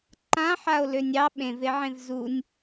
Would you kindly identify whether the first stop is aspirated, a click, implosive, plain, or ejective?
click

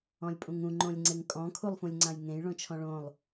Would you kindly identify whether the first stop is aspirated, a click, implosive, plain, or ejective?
ejective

